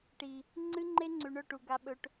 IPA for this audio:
ʈ i˨ | ŋ͡ǀ ɨ˦ ŋ͡ǃ e˦ ŋ͡ǀ ʉ˨ ɳ ɵ˦˨ ʈ u˨ ɡ a˧ ɓ ɵ˧ ʈ

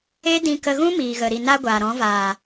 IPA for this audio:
e˦ d ĩ˧ k ə˧ ɣ ũ˦ m iː˨ ɣ ə˨ ɾ i˨ n a˧ ɡʷ aː˨ ɾ ɔ̃˨˦ v aː˨

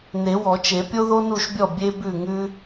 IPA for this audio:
n e˨˩˦ w ɔ˨˩˦ t͡ʃ e˨˩˦ pʲ o˥ ð o˥ n u˥˩ ʃ bʲ ɔ˥˩ bʲ e˥ b ʉ˥˩ ŋ ʉ˥

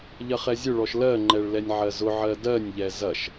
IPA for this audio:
ʎ ɐ χ ɛ zʲ ʊ ɭ ɔ ʃ l ɜ ŋ͡ǃ ɛ ɭ l ɛ nʲ ʕ ɜ z ʊ ʕ ɜ d ɜ nʲ ʎ ɛ z ɐ ʃ

